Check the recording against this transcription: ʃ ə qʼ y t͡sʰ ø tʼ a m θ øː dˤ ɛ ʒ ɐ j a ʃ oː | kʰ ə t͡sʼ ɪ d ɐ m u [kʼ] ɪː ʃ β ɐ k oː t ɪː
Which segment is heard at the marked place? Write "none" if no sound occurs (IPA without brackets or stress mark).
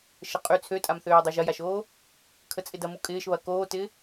kʼ